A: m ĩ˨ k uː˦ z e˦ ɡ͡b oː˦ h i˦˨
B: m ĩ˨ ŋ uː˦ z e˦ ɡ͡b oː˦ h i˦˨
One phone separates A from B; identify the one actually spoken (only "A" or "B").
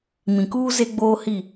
A